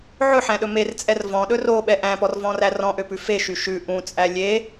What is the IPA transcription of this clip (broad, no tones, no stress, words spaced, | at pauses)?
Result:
ʕɵħæ̃ɗɵ mert͡sʼɛr vɔ̃ɗɵ roɓɛ ʔæ̃pɔrvɔ̃ræ rɔ̃ʔøpʉ feʃy ʃʉ ʔũt͡sʼæ lʲe